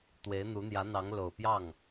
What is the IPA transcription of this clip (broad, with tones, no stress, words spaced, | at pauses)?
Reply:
t̪we˧˥ɪ̯n̪u˧˥n̪jä˧˥n̪ɑ˧˥ŋ lo˨˩ʊ̯pjɑ˥˩ŋ